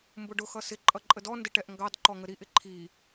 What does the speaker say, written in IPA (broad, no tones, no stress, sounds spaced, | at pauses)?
m b ʊ ɖ ʊ x ʌ s ɪ ǃʼ ʌ ǃʼ ə d ɔ n d ɪ ʈ ɛ ʔ ŋ ɡ ɑ d ǃ ɔ ŋ ə ɾ i ʔ ɪ ǃʰ i